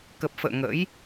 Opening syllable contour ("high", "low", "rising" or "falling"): low